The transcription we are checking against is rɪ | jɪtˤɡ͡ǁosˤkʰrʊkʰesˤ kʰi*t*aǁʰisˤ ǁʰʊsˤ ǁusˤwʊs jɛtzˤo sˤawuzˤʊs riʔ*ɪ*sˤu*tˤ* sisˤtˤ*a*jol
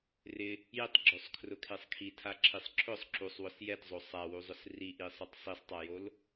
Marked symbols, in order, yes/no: no, no, yes, yes

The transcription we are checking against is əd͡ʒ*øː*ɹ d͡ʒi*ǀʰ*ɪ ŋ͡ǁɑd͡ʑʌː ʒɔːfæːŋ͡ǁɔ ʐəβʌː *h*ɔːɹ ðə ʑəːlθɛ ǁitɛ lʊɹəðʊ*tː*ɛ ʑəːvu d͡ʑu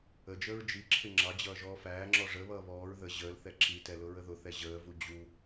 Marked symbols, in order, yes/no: no, no, no, no

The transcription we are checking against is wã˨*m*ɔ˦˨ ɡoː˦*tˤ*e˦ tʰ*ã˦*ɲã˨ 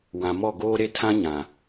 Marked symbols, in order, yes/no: yes, no, yes

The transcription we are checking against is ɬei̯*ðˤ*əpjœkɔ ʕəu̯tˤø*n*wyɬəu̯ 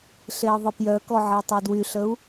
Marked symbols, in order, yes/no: yes, no

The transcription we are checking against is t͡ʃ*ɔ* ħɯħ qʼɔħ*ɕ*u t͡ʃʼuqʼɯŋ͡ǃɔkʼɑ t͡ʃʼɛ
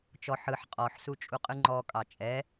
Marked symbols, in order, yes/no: yes, no

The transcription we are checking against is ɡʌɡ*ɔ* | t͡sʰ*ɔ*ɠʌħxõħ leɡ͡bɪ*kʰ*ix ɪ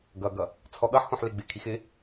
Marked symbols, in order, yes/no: no, yes, yes

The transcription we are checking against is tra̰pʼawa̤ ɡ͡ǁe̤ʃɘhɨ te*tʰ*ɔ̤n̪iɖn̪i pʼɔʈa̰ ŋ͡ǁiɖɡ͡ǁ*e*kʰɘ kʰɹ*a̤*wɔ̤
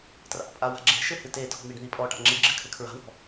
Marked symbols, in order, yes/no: yes, no, yes

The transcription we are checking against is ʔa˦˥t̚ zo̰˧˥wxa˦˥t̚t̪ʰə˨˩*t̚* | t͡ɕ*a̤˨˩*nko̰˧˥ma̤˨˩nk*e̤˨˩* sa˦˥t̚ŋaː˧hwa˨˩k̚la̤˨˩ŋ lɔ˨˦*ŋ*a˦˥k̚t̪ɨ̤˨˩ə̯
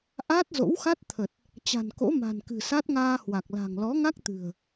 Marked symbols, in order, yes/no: yes, yes, no, yes

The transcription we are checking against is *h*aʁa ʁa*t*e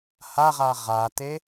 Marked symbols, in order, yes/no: yes, yes

